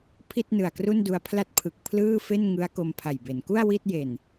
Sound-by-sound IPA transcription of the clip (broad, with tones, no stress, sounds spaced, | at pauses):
pʰ i˥˩ t̚ n ɯ˨˩ a̯ k r u˥˩ n d u˧ a̯ pʰ l a˥˩ t̚ pʰ ɯ˨˩ k̚ pʰ l ɯː˥˩ f e˥˩ n ŋ ɯ˦˥ a̯ k o˧ m pʰ a˨˩ j b e˩˦ n k u˥˩ a̯ w i˥˩ t̚ j e˨˩ n